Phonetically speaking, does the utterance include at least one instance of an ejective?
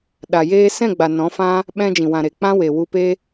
no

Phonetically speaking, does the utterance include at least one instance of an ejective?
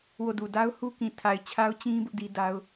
no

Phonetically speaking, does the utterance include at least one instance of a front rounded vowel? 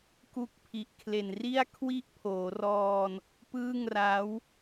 no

